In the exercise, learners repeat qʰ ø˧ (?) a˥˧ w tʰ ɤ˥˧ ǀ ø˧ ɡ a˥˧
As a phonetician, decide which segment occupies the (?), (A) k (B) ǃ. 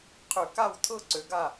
A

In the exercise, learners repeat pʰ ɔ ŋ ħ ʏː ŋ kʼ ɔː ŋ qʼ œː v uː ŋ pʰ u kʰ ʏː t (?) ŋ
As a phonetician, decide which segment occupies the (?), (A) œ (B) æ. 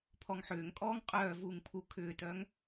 A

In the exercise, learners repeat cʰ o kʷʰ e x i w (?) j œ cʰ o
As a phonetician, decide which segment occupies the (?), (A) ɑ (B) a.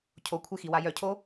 B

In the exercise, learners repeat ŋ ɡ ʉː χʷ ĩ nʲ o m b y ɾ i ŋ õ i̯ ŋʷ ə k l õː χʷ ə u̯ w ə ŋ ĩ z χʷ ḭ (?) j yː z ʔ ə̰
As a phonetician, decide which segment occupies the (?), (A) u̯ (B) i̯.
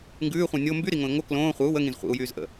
A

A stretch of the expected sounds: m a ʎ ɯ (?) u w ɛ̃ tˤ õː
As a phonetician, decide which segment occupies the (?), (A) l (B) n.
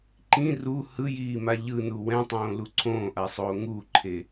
B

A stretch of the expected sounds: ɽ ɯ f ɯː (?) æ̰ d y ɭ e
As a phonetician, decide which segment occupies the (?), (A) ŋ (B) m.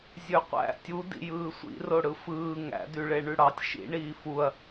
A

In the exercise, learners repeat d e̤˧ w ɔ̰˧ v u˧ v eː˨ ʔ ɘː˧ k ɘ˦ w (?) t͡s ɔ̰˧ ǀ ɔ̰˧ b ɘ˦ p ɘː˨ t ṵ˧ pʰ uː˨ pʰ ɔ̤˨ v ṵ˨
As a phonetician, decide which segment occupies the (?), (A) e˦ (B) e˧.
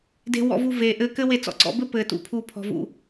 B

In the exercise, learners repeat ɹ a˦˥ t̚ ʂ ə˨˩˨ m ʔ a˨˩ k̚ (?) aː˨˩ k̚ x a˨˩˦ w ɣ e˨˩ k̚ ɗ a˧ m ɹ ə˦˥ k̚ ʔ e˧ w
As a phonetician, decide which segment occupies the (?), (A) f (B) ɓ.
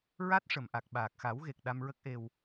B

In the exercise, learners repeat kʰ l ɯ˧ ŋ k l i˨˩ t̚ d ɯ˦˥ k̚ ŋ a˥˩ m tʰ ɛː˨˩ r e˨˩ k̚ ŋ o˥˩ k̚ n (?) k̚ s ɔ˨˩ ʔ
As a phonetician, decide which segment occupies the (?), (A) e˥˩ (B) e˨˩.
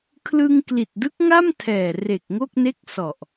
A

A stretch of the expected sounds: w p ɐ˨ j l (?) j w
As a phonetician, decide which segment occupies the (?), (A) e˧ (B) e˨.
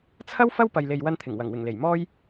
B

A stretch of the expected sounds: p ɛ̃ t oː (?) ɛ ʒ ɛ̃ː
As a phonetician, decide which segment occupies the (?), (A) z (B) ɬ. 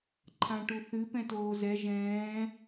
A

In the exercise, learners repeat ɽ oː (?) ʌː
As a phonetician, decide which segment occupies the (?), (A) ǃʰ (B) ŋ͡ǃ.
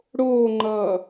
B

